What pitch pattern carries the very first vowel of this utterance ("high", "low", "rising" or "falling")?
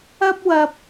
high